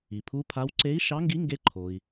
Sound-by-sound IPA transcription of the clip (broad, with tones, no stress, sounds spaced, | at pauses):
i˩ pʰ u˧˥ pʰ a˧˥ w ǀ e˧˥ i̯ ʃ ɑ˧˥ ŋ ɡ i˧˥ ŋ ɡ e˧˥ ǃʰ o˩ i̯